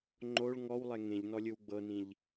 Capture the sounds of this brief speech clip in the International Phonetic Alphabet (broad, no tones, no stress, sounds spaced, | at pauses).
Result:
ŋ͡ǃ o ɭ ŋ ɔ w lˠ ɛ ŋ ẽ ʎ n ɔ lʲ ɯ w ɡ͡b ɤ n ĩ ʎ